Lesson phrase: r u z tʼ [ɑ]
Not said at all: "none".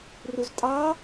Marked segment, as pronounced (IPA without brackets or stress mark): ɑ